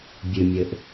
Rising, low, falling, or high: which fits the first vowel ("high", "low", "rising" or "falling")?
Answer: low